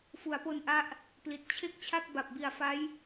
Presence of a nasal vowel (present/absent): absent